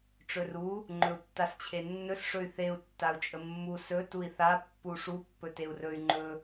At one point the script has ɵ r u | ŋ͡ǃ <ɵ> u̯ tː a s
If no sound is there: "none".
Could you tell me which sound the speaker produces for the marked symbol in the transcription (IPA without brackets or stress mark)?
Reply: ɵ